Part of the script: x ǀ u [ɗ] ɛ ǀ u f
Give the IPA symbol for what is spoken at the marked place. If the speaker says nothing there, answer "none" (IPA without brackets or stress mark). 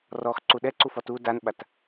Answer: ɗ